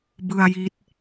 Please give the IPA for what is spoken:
b ɯ˧ a̯ j i˦˥ t̚

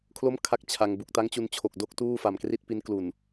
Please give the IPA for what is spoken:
kʰ l o˥˩ m kʰ a˥˩ k̚ t͡ɕʰ a˧ ŋ b u˨˩ k̚ t a˦˥ ŋ t͡ɕ u˧ n t͡ɕʰ o˨˩ k̚ d o˥˩ k̚ t uː˥˩ f a˨˩ m k r i˥˩ t̚ p i˦˥ n k l u˨˩ n

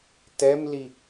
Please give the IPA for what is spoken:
t ɛ m l i

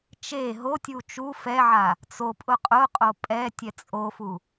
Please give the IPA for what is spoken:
t͡ʃ e ɦ o tʲ u t͡ʃ u f ɛ ʕ a | t͡s o pʼ ʊ qʼ ʊ qʼ o pʼ ɛ tʲ ɛ t͡sʼ o f u

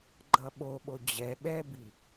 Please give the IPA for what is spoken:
ɡ͡ǃ ʌ ɓ o ɓ o d͡ʑ ɛ ɓ ɛ b i

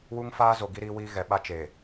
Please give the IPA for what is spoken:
w u˦ ŋ f aː˦ z o˨ ɡ i˦ ɾ iː˦ w iː˦ ɣ ɛ˨ ɓ a˦ t͡ʃ e˨

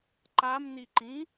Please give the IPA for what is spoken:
ǃ a m n i ǃ ĩ

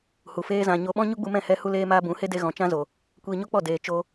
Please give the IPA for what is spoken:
h u˨ f eː˦ z ã˧ ɲ o˧ ɓ ɔ̃˦ ɲ u˦ ɡ͡b u˧ m ɛ̃˦˨ h ɛ˧ h u˧ l eː˧ m aː˧ b ũ˨˦ h e˦ d e˧ ɣ ɔ̃˨ t͡ʃ ã˦ z o˨ | kʷ iː˧ ɲ o˦ k͡p ɔ˦˨ d eː˨ t͡ʃ o˧

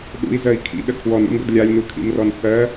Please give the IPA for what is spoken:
ɗ ṵ i̯ z ɜ i̯ kʰ ḭ ɗ ə kʰ w ɔ n ṵ m ɡ ə d lʲ a lʲ n u kʰ ḭ m r ɔ n x ɜ

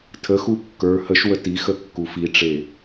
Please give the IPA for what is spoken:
tʰ ə x u kː ə˞ h ə ʃ w ə t i x ə kː u f i ʈ͡ʂ e

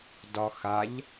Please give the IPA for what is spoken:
d ɒ x a ʎ

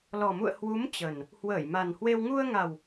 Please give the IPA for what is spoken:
l ɔ˨˩ m ṵ˧˨ ə̯ h w u˨˦ m t͡ɕ ə˨˩ n | h w əː˧˩ j m a˨˩ n h w e˧ w ŋ u˧ ə̯ ŋ a˨˩ w

